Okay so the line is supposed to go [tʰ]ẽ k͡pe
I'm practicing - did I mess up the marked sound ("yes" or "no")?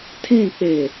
no